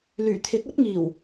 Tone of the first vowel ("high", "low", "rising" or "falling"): low